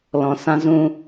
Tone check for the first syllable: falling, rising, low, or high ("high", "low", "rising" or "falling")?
low